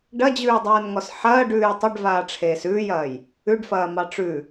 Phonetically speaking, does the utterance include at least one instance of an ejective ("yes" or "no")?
no